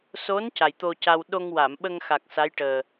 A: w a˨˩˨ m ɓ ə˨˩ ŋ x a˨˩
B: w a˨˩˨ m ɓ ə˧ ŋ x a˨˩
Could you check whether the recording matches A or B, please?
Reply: B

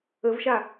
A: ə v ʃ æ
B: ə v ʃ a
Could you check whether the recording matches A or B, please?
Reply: B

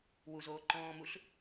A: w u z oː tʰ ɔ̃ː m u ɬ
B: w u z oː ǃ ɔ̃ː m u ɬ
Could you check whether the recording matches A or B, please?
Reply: B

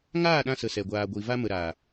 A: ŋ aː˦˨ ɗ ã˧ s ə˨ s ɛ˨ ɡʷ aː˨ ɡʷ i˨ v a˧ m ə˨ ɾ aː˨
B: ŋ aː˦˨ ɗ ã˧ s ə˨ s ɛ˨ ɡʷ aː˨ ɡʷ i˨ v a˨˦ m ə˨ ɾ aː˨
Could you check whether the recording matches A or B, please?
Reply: A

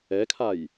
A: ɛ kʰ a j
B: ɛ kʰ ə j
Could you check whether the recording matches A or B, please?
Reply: A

